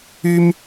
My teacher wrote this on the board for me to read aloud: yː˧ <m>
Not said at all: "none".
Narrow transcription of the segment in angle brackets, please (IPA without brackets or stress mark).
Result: m